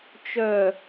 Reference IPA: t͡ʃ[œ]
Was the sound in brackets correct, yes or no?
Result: yes